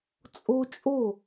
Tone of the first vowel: high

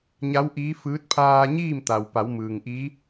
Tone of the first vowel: rising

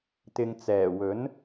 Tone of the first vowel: low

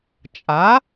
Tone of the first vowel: rising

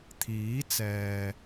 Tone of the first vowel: rising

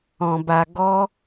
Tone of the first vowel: low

